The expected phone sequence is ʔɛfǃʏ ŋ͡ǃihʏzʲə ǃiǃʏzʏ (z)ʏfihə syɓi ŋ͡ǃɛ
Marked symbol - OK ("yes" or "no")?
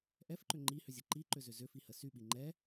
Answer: yes